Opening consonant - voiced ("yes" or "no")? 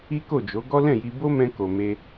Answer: no